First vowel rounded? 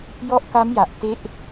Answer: yes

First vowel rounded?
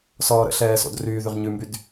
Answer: yes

